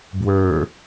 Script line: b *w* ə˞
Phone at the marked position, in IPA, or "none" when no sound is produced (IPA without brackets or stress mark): w